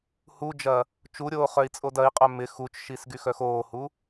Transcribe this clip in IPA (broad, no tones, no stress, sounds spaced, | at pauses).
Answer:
h u d͡ʒ ɐ | t͡ʃ u ɾʲ oː χ œ i̯ t͡sʼ o d ɐ i̯ qʼ œ m ɪ x u t͡ʃ ʃ i s ɡ y x œ x oː h u